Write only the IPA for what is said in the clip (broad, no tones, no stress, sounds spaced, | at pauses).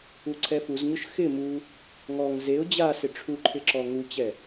u ǀʰ ɛ f u z ɲ ʊ ʃ x ɪ m u | ŋ ɔ ŋ z e ʊ̯ d͡ʑ a s ɪ ʈ͡ʂʰ u ǃʰ ɪ ǁ ɔ ŋ u t͡ɕ ɛ